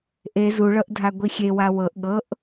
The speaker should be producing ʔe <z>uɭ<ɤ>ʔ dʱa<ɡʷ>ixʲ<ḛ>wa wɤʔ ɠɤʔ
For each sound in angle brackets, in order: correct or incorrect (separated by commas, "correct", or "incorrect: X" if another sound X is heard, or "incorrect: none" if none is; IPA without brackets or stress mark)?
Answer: correct, correct, correct, incorrect: e